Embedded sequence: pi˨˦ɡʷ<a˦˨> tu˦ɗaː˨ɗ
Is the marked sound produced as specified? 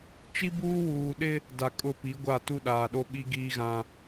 yes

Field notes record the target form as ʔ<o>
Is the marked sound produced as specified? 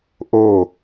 yes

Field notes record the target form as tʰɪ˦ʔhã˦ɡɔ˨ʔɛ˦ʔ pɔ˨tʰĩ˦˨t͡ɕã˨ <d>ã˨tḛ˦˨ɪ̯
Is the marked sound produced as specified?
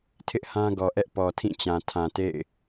no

